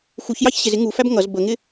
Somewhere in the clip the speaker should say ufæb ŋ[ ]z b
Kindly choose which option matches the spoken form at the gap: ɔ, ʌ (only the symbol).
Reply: ʌ